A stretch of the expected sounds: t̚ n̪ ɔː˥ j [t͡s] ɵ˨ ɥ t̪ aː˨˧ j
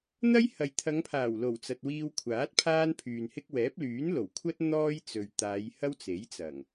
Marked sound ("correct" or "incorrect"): correct